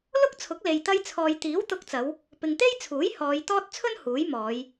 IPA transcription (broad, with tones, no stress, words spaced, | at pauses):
lʊ˥k̚t͡sʰʊ˨˥k̚ le˨jt̪ɐ˥j t͡sʰɔː˨jt̪iː˨˥wt̪ʊ˧k̚t͡sɐ˨˧w | pɪ˨ŋt̪e˥jt͡sʰuː˨˥j hɔː˨˧jt̪ɔː˥t̚ t͡sʰɵ˥n huː˨˥jmɔː˨˧j